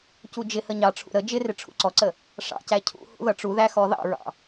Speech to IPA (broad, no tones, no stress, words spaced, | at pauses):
cud͡ʒɪhə ɲɑʈ͡ʂʰṵ ɾə d͡ʒɪrɪ ʈ͡ʂʰṵǀɔǀə | ʂɑ̰cæ cʰṵhṵ ðʌʈ͡ʂuðæ xɔðɑ̰ɹɑ̰